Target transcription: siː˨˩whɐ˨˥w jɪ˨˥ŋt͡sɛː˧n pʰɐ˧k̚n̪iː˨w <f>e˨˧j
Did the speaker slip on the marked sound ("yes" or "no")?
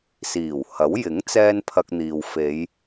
no